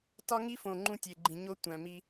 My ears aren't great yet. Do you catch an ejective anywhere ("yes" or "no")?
no